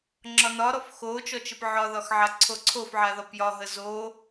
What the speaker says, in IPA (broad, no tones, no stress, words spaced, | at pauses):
ŋ͡ǁɒnɒɾɔf xo t͡ʃɔt͡ʃəpʕɒðɒx ʕaǀʰoǀʰofʕa ðɒpjɒɦə zo